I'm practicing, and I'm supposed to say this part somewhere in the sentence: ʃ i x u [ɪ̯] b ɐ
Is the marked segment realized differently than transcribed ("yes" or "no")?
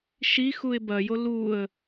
no